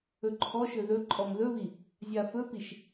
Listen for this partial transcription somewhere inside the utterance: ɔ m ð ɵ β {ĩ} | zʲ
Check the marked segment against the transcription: incorrect: i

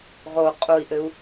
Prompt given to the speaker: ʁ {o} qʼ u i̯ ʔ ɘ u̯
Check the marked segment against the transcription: correct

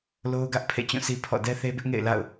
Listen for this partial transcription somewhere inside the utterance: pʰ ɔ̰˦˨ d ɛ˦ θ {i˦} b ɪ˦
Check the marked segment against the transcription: incorrect: e˦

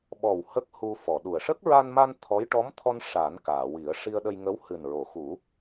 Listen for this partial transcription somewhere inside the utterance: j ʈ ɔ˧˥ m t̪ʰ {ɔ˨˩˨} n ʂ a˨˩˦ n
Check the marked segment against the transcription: incorrect: ɔ˧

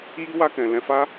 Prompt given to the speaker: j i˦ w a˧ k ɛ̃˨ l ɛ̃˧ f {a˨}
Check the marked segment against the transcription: incorrect: a˦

